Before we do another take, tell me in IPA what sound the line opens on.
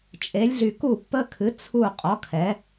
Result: t͡ʃʼ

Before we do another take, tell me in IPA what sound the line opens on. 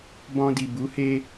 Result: b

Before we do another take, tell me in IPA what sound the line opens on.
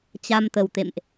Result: t͡ɕ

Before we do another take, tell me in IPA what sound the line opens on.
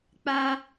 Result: k͡p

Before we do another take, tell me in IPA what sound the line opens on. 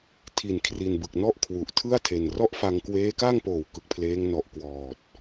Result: tʰ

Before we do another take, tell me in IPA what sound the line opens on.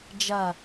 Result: d͡ʒ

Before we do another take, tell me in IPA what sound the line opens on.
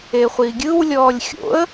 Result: e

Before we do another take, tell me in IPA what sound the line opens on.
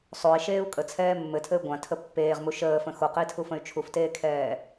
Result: sˤ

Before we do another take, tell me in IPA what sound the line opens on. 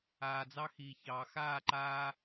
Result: aː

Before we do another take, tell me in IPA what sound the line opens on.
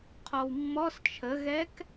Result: qʰ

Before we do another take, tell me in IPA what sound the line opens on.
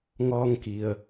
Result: ŋ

